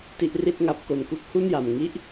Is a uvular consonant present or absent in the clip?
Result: absent